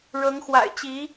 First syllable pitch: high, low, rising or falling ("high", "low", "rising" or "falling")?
rising